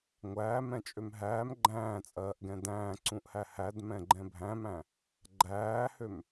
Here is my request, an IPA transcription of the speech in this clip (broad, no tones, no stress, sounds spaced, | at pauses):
ŋʷ æː m ɛ̃ t͡ʃʼ ø m ɦ æː m ɡ͡ǃ æ̃ː t͡sʼ ɜː ʔ ɡ ɛ̃ d æ̃ː ǀ ũ ʔ h æ h æ d m ɛ̃ ɡ͡ǃ ɛ̃ bʱ æ̃ m æ̃ | ɡ͡ǃ æː h ø m